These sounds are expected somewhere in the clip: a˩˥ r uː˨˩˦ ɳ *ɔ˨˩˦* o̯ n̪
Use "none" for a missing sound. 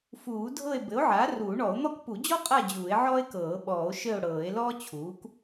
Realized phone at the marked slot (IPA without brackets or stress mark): ɔ˨˩˦